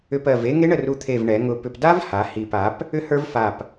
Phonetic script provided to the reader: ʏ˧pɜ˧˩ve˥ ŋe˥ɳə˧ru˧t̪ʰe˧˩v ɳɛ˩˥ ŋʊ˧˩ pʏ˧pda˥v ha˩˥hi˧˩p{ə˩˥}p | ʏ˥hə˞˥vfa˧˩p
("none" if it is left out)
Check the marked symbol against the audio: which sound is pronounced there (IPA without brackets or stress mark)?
a˩˥